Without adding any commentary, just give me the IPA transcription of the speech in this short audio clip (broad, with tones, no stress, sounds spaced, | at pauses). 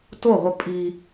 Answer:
t o˦˨ ʁʷ ə˧ pʼ i˧